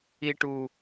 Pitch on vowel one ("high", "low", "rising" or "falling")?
high